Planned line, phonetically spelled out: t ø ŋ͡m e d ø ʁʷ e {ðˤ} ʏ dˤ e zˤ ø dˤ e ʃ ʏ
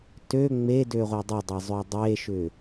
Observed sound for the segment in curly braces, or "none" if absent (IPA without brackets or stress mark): dˤ